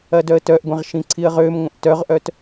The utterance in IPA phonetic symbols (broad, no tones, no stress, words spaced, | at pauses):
ɐdœə̯tœʔɡʷɛ̃ʁ ʃĩǀʰiə̯ʁømŋʷə̃ʔ tœʁʔœt